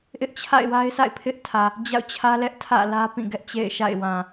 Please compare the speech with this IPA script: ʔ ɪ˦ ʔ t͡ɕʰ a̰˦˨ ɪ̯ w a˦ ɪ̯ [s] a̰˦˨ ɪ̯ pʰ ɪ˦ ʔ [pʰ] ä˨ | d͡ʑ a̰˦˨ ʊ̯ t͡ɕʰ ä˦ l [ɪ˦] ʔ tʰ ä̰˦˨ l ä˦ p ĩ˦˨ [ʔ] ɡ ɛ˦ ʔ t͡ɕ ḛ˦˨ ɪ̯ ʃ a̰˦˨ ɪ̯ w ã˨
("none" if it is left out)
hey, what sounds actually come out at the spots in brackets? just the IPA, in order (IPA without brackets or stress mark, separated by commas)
s, tʰ, ɛ˦, none